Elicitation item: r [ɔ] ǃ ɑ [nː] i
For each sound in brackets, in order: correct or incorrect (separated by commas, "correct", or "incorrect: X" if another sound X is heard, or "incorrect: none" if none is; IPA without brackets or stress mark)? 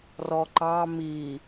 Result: correct, incorrect: m